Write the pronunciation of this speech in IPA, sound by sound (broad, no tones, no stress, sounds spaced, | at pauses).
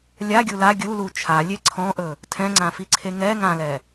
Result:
lʲ a ɡʲ u l a ɡʲ u l u t͡ʃʰ a lʲ e ǀʰ ɔ̃ ʔ ɵ | tʰ ɛ̃ ŋ͡ǀ ã f i ǀʰ e ŋ ɛ ŋ ã l ɛ